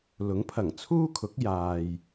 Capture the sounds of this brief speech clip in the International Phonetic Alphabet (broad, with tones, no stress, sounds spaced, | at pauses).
l ʊ˨˥ ŋ pʰ ɐ˨˩ ŋ t͡sʰ uː˥ kʰ ʊ˨˥ k̚ j aː˨ j